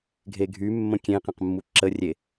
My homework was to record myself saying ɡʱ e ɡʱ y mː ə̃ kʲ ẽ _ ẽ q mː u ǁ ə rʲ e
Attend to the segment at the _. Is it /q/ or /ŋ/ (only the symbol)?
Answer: q